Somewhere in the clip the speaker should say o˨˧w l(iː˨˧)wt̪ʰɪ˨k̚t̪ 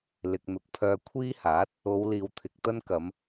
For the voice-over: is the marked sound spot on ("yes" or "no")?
yes